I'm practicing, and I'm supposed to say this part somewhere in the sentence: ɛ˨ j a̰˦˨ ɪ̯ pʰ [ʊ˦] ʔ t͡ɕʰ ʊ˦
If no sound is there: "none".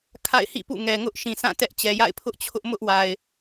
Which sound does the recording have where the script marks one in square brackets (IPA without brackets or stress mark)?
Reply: ʊ˦